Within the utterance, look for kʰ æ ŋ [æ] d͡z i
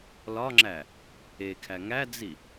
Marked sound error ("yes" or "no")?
no